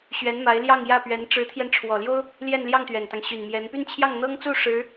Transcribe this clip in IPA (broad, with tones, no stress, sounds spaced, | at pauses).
ɕ ɥ ɛ˧˥ n m a˧˥ ɪ̯ l j ɑ˥˧ ŋ j ä˥˩ p ɥ ɛ˧˥ n ʈ͡ʂ ɻ̩˧˥ t̪ʰ j ɛ˧ n ʈ͡ʂʰ w ɔ˨˩ l j o˥ ʊ̯ | l j ɛ˥˧ n l j ɑ˥˩ ŋ t̪ ɥ ɛ˨˩ n t̪ ɑ˦ ŋ ɕ y˨˩ n m j ɛ˧˥ n p y˥˧ n t͡ɕʰ j ɑ˥˩ ŋ n̪ ɤ˥ ŋ t͡s u˥˩ ʂ ɻ̩˧˥